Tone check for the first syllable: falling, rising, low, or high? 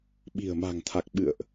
low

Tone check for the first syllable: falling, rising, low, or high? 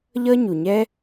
high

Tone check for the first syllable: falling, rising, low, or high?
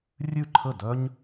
falling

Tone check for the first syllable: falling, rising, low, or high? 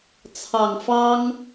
low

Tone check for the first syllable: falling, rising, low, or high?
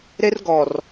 high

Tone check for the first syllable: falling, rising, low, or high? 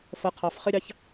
rising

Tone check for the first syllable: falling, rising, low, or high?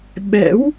rising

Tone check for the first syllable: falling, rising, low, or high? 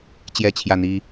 falling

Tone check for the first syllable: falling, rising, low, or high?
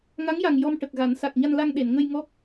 rising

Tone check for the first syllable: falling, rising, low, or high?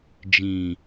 low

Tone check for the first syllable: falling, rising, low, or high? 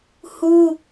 high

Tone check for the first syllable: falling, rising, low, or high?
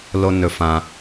low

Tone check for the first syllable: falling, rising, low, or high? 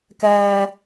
high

